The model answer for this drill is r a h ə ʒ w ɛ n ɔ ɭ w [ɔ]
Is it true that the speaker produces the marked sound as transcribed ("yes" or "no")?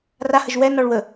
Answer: no